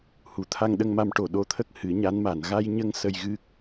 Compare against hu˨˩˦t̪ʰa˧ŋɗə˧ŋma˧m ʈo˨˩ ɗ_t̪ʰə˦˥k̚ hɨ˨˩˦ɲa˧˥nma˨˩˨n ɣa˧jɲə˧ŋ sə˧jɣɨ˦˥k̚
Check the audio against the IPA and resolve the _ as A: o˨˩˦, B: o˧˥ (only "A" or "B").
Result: B